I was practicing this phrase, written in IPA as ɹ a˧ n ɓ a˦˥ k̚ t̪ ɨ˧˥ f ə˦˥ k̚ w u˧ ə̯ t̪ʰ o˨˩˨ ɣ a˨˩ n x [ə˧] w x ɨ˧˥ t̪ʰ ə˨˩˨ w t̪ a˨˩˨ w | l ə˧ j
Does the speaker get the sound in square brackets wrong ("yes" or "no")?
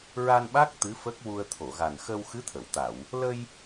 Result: no